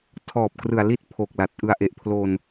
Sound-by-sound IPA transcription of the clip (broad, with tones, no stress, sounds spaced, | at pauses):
tʰ ɔː˨˩ p̚ k r ɯ˨˩ a̯ l i˥˩ t̚ pʰ o˨˩ k̚ l a˨˩ t̚ ʔ ɯ˧ a̯ ʔ e˨˩ ʔ pʰ l o˧ n